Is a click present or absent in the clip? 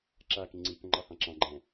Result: present